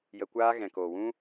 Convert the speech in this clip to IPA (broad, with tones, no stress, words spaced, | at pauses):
jə˧kʷaː˦ ɣɛ̃˨koː˨wũ˦